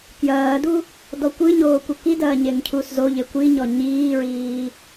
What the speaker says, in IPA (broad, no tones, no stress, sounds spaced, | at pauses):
k j ɐː d u | d ɔ kʷ ɨ ɲ oː kʷ e k i d ɐː ɲ e ŋ cʰ u s z o ʎ e kʷ i ɲ ɔ ɲ iː ɹ iː